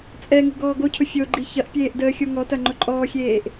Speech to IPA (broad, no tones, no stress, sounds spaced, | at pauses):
t͡sʼ ɛ ŋ ṳ ɡ ɔː ɡ o cʰ ʊ fʲ o ɡ͡ǃ i ç ɐ ʔ pʲ eː ʔ d əː xʲ o ŋ ɔ t ɐ ŋ͡ǃ ʊ ǃʼ ɔː xʲ eː ʔ